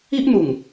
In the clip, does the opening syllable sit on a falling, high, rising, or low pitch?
high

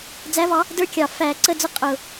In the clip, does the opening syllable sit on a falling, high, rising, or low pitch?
rising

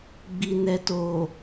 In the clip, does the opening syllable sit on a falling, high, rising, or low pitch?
low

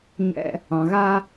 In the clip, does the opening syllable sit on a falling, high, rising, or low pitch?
high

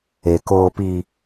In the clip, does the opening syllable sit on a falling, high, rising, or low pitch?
low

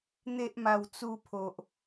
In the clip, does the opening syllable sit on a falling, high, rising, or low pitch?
high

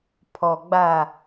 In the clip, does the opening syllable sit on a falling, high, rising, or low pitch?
low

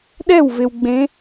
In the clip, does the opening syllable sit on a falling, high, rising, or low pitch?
falling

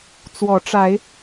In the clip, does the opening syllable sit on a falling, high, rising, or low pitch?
rising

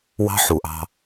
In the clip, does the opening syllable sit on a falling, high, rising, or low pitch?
high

